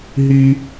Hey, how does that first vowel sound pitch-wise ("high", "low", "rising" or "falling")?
high